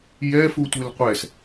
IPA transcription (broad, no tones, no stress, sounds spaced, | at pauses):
j ɛ f u tʷ ɪ l qʷ ɛ s